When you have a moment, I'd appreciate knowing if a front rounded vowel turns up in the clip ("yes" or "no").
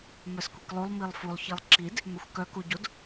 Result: yes